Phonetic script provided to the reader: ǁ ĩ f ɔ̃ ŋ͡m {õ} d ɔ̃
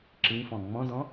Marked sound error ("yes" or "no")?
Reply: yes